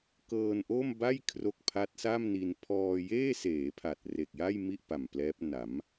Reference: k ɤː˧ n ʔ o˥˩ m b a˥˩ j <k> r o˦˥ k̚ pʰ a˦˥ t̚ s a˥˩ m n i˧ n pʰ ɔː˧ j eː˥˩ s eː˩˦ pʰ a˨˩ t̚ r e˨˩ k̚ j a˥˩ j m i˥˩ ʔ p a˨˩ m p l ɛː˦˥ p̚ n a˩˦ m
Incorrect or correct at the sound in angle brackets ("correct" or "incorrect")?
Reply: incorrect